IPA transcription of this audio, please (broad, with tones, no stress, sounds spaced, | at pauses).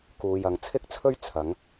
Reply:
k uː˨ j ɐ˨ ŋ t͡sʰ ɪ˥ k̚ t͡sʰ ɵ˥ ɥ t͡sʰ ɐ˨˥ ŋ